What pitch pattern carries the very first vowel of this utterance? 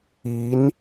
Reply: rising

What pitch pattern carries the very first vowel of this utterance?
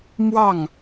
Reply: falling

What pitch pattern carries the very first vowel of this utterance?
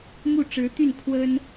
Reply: falling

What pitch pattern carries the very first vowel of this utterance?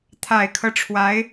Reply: low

